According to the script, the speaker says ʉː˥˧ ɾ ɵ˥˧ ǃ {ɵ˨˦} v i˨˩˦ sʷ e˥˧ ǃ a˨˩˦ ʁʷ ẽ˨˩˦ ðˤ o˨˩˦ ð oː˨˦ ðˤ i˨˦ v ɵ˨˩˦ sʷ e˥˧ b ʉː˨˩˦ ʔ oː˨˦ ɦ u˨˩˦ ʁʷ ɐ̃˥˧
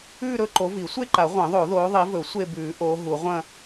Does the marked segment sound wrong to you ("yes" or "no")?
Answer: yes